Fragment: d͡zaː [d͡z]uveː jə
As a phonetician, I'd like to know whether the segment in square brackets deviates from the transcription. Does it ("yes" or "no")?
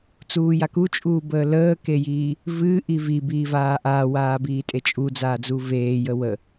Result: no